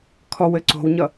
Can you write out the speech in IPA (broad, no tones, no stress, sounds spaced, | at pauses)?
kʰ ɔ w ɘ ǀ o̤ w ɲ ʌ